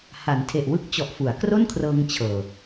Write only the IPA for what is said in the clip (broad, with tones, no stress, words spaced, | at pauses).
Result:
ha˩˦ntʰe˨˩ʔwɯ˥˩k̚ t͡ɕɔ˨˩ʔfu˩˦a̯ kro˥˩nkʰrɤː˧ŋ t͡ɕʰɤː˨˩